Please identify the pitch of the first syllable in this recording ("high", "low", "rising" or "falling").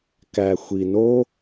low